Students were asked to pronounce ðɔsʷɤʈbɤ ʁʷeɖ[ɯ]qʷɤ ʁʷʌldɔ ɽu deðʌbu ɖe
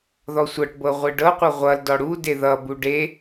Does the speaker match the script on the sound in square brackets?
no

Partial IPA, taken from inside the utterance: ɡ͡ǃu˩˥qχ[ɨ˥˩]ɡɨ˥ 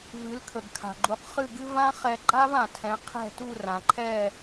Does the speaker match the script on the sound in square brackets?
yes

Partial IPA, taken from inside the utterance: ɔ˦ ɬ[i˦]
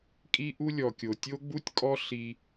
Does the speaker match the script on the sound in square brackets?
yes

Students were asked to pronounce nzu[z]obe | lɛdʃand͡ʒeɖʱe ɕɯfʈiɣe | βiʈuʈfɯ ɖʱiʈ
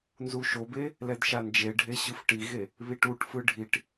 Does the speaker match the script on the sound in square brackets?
no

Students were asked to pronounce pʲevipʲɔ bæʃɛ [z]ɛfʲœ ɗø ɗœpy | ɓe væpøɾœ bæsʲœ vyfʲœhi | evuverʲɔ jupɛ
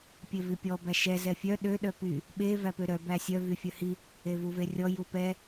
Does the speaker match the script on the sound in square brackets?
yes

